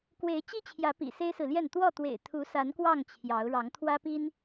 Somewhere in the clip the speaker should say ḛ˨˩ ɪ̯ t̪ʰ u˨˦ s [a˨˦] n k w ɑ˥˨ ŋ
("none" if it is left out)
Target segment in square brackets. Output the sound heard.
a˨˦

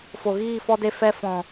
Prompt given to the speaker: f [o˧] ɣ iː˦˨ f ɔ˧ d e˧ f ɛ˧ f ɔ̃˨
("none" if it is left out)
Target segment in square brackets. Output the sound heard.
o˨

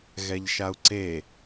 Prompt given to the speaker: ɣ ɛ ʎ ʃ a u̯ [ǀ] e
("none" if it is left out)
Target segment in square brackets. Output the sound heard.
ǀ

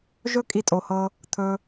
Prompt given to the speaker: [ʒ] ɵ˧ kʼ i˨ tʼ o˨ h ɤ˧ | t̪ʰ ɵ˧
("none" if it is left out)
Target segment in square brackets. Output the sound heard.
ʒ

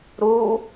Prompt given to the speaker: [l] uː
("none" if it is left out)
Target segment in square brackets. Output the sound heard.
ɾ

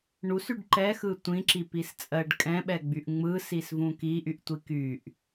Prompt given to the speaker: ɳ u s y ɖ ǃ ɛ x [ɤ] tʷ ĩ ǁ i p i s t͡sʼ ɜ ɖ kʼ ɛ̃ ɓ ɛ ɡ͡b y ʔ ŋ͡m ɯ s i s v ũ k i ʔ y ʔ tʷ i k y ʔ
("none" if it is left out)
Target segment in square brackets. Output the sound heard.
ɯ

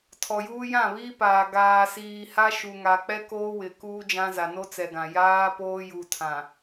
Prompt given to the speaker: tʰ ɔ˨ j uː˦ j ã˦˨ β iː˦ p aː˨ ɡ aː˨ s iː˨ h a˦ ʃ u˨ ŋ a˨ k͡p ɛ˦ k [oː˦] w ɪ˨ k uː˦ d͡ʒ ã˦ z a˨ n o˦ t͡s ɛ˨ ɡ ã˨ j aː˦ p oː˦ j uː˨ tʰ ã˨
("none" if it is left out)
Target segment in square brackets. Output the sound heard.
oː˦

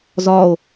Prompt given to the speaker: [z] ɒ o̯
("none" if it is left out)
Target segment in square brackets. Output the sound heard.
z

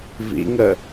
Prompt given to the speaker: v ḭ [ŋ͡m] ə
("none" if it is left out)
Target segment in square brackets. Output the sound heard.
ŋ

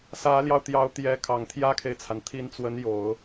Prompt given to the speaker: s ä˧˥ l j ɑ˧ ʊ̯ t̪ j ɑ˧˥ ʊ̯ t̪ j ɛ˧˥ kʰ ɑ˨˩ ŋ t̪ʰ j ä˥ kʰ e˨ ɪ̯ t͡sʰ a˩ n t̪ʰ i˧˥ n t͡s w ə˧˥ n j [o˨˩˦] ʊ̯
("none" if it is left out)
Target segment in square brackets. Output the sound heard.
o˨˩˦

